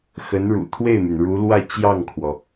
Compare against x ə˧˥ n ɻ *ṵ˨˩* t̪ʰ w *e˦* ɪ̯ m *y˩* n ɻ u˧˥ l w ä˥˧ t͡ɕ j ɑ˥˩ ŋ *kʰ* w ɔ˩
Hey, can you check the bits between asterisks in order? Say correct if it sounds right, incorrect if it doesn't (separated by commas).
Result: correct, incorrect, correct, correct